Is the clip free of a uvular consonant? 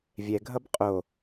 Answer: no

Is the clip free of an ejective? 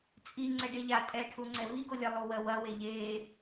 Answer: no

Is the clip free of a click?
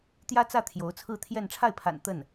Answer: yes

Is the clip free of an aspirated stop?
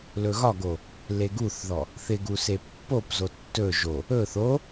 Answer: yes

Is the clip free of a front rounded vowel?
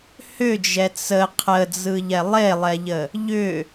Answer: no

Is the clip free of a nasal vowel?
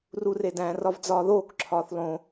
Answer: no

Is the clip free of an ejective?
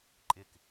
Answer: no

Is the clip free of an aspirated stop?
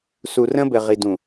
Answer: yes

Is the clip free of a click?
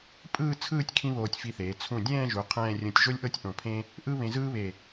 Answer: yes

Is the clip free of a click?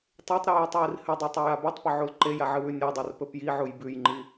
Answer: no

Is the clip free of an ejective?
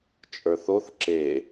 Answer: no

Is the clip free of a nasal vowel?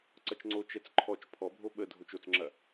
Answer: yes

